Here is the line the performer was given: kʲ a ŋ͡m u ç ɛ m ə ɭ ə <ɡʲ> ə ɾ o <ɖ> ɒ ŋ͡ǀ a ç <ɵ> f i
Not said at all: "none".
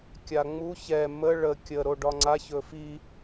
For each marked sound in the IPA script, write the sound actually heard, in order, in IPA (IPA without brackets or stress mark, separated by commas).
kʲ, ɖ, ɵ